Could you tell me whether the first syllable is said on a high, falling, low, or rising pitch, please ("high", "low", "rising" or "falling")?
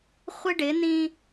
high